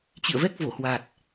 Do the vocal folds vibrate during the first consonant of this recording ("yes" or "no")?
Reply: no